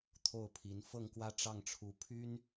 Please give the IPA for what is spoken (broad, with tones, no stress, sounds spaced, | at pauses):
t̪ʰ o˥˩ ʊ̯ pʰ i˧˥ n f ɤ˥˩ ŋ k w ä˥ ʈ͡ʂ ɑ˥˩ ŋ ʈ͡ʂʰ u˧˥ pʰ y˥ n